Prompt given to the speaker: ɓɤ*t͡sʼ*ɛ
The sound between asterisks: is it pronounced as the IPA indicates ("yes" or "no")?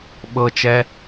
no